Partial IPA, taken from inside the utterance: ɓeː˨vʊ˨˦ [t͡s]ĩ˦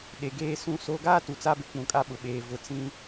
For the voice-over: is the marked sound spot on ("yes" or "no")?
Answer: yes